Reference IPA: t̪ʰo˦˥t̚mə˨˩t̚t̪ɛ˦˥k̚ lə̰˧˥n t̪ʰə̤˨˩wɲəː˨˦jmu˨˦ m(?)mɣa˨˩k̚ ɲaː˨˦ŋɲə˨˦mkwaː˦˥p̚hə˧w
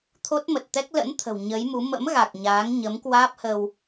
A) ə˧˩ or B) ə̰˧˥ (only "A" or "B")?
B